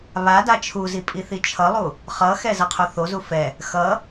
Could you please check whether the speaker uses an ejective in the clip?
yes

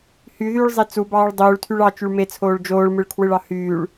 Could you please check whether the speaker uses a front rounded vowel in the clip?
yes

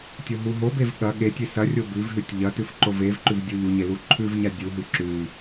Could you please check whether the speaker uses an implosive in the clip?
yes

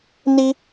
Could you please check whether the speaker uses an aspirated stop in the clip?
no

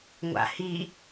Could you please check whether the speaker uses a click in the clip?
no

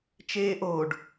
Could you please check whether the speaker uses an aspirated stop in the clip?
no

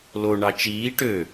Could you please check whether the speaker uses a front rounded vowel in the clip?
yes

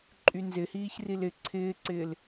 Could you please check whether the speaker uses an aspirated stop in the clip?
yes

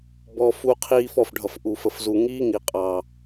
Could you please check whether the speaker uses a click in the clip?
no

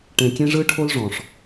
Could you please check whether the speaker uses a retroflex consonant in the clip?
yes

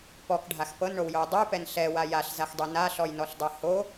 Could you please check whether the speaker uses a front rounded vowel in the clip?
no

